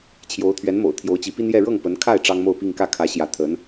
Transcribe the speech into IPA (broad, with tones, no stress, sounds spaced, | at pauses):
t͡ɕʰ j o˧˥ ʊ̯ t̪ʰ ɥ ɛ˧˥ n m o̰˨˩ ʊ̯ t̪ʰ j o˧˥ ʊ̯ t͡ɕ i˧˥ p i˥ n j ɛ˥˧ ɻ ɤ˥˩ ŋ p ə˧˥ n kʰ a˥˩ ɪ̯ ʈ͡ʂ ɑ˥ ŋ m o˥˧ ʊ̯ p i˥˧ ŋ k ä˥˩ kʰ ä˧˥ ɕ j ä˧˥ t̪ʰ ə˧˥ n